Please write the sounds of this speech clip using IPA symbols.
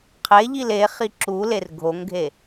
qʰ e ʎ i l e χ i ǁ u l e r ɡʱ o ŋ ɡʱ e

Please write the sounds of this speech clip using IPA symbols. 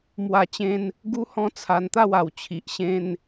m w a˧ t͡ɕ ẽ˧ n | ɡ u˦ h ɔ̃˦ t͡sʰ a˧ n t̪ a˥˧ w a˨˩ w t͡ɕʰ i˨ ʔ ɕ ẽ˧ n

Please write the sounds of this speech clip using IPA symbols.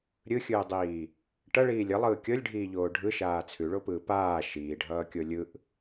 ɾʲ ɯ xʲ ɯː dˤ iː | ʈ ʌ ɭ iː lʲ ʌ lˠ ɯː kʲ ɤ lʲ ɖʱ iː ʎ oː ɖʱ ɯ ʃ aː t͡sʰ ʉ ɭ o p ɯː p aː ʃ iː ɖʱ ʌː kʲ o lʲ ɯ ʔ

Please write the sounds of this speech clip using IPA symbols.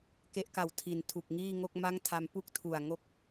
k e˦˥ ʔ k a˨˩ w tʰ i˨˩ n tʰ u˨˩ k̚ ŋ iː˥˩ ŋ o˥˩ k̚ m a˥˩ ŋ tʰ a˧ m p u˥˩ k̚ tʰ u˨˩ a̯ ŋ o˦˥ k̚

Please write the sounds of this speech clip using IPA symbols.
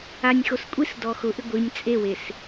a nʲ x o s kʷʼ i s d ɔ x ʊ ʔ ɪ ɡʷ i nʲ t͡sʼ e w e s

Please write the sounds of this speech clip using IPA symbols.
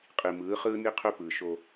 qʼ i˨ m ɯː˨˦ χ ɯː˦ n i˦ qʰ ø˦ p ɯː˨ ʃ o˦

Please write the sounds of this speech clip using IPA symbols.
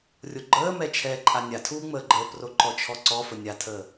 rʲ o ɡ͡ǃ əː m ɛ t͡ʃʰ ɛː ǃʼ a nʲ a tʰ uː ŋ͡m əː ɡ͡ǃ əː p r o ǃ ɔ t͡ʃʰ ɔ ǀ ɔ f ə nʲ a tʰ əː

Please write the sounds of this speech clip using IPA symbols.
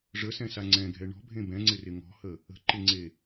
ʐ ə s ɛ̃ s a ŋ͡ǀ ɛ̃ ɡʱ ɛ ɳ ɔ̤ bʱ ẽ b ɛ̃ ŋ͡ǀ ɪ r ɪ ŋ ɔ̤ h ə | ə̤ ǃ ɪ ŋ͡ǀ e

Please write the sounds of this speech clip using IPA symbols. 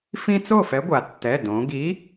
f ĩ˦ t͡s o˥˩ f ɛ˨˥ ɡʷ a˩ tː ɛ˩˧˩ d õ˩˧ ɡ i˨˥

